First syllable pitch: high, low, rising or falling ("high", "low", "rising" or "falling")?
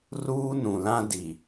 high